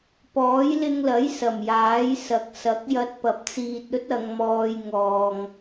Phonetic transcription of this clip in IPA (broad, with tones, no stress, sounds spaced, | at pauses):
p ɔː˨˥ j l ɪ˧ ŋ l ɐ˨˥ j s ɐ˨˩ m j aː˨˥ j s ɐ˨˥ k̚ s ɐ˨˥ k̚ j ɐ˧ t̚ p ɐ˨ p̚ t͡s iː˧ t̚ ɵ˥ t̚ ɐ˨˧ ŋ m ɔː˧ j ŋ ɔː˨ ŋ